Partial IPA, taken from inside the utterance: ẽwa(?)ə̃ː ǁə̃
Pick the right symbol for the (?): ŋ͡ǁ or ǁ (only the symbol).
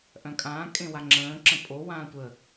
ŋ͡ǁ